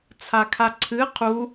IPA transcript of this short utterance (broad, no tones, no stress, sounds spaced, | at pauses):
t͡sʰ a kʰ a ǀʰ ɨ qʰ u